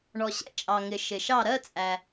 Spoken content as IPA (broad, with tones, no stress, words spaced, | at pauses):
ɳɔ˩ɕɛ̰˥˩t͡ʃʼɑ˩ ŋɪ˩ʃɪ˩ ʃɑ˧˩ɾɜ˥˧t͡sʼæ˩